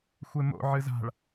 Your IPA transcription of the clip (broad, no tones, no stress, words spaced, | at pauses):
xʷemo̰ ʕɨza̤ɭ